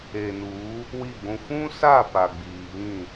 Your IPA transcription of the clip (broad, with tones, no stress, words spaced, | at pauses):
e˨nuː˨˦ | wi˦˨ɡʷũ˦ fũ˦sa˦˨ pa˨ɡ͡biː˨βĩ˦˨